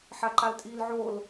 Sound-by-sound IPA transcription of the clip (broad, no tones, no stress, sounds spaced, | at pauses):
ħ a ǃ a l tʼ iː l ʕ o l